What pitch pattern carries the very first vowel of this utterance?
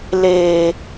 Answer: low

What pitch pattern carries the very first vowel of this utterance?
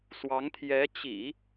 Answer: rising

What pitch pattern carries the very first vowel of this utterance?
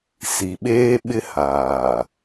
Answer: low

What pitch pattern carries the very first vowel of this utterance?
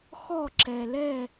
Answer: falling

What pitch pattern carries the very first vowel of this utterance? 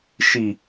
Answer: low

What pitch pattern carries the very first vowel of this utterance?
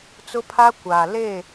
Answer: high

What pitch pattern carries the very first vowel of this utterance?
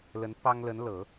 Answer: rising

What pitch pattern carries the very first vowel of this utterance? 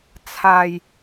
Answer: low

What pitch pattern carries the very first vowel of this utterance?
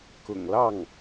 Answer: low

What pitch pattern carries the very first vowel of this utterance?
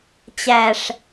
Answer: low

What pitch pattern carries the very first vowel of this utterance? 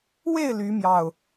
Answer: falling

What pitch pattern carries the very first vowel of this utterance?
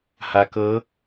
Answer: low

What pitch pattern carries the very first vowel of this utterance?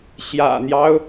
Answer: low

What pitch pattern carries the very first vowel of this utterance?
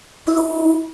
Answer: low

